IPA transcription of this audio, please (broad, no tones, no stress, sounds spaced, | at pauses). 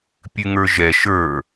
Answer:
pʲ ʉ ŋ ə˞ ʒ ɛ ʃ ə˞